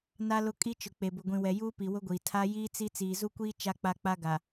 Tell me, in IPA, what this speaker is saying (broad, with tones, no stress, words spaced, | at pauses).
na˦lʊ˦ kʼi˦ t͡ʃʊ˨k͡pe˨bʊ˨ ɡʷĩ˨wɛ˨ juː˦pi˨wʊ˦ɡʷiː˨ tʰa˦ jiː˦t͡si˦ t͡siː˨zu˦kʷiː˦ t͡ʃa˦k͡pa˦k͡pa˦ ɡa˨